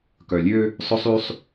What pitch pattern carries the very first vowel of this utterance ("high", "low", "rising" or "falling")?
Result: low